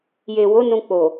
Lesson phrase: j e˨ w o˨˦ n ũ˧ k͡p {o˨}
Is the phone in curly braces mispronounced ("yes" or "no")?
no